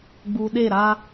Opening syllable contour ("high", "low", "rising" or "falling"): low